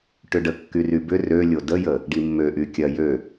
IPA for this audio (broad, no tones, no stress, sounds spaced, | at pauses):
ʈ ʏ ɖ ə kː y r y b ʏ r ø lʲ o d ə j ə | ɖ i mː ø ʔ y kʲ ɐ j ø